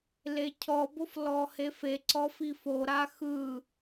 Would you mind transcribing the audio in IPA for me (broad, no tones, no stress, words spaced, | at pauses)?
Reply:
lecʰɔbof lɔhefeǀɔ fifoɾa xɯ